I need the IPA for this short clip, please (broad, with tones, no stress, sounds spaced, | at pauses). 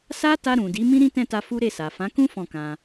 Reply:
s a˦ t a˧ ɾ ũ˨ d i˨˦ m ĩ˦ ɾ ĩ˦ t ɛ̃˦˨ t a˧ f u˦ ɾ e˦˨ s a˨ f ã˨˦ k ũ˦ f ɔ̃˦˨ k ã˧